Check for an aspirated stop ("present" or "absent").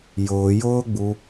absent